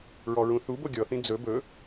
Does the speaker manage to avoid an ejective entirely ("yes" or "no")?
yes